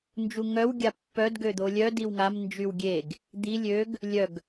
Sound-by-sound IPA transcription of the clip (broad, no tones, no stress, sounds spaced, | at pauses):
n d͡ʒ u ŋ œ w ɡʲ a pː œ d ɡ ø d̪ o lʲ œ d i w ŋ a m n d͡ʒ y w ɡʲ e ɡ | d̪ i lʲ ø ɡ | lʲ œ ɡ